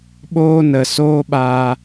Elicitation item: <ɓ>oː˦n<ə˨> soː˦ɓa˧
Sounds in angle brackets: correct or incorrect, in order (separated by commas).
correct, correct